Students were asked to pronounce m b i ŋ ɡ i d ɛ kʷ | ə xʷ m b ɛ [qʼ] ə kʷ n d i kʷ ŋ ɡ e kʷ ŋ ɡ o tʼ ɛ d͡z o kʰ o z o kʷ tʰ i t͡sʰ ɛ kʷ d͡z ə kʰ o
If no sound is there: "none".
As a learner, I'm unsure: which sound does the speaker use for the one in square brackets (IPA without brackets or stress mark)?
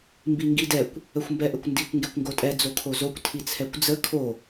ʔ